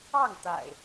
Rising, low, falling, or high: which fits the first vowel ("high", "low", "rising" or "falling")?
falling